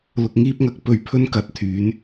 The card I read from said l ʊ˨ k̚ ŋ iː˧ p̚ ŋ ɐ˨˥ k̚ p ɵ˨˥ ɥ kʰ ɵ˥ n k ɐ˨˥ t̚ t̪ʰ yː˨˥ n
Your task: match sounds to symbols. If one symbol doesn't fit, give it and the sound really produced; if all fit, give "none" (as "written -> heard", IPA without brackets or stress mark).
kʰ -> pʰ